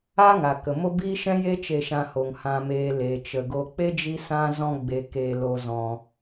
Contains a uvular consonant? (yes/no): no